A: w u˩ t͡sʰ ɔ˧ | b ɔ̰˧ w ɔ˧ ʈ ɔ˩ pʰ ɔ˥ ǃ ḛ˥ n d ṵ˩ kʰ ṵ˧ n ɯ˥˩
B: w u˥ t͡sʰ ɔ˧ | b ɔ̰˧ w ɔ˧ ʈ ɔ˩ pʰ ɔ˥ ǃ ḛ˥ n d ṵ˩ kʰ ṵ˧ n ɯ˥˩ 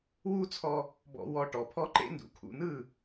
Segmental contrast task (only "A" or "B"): B